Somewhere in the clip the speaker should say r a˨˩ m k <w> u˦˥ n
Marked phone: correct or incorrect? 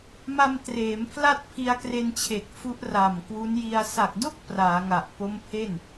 correct